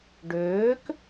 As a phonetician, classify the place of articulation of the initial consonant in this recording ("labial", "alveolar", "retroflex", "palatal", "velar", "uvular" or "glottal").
retroflex